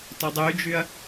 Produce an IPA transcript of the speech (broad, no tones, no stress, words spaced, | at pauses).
tɒdˤyd͡ʒyɐ̯